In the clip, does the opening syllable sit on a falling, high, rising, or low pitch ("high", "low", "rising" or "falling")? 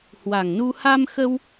low